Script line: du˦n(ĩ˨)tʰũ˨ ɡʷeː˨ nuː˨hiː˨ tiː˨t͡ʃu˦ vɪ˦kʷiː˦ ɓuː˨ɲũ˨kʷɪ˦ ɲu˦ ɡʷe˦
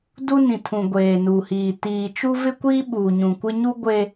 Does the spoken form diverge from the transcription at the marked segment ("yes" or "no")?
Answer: no